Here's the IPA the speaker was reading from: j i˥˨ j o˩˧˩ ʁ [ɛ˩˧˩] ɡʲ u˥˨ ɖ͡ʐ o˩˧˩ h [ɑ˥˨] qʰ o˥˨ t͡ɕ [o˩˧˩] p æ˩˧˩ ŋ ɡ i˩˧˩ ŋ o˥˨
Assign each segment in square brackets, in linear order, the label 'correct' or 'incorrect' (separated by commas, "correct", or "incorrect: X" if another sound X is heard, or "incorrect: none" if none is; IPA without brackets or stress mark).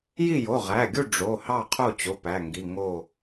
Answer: incorrect: æ˩˧˩, correct, correct